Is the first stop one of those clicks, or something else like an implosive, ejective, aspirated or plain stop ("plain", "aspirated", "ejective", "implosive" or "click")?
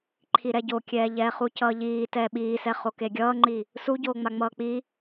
click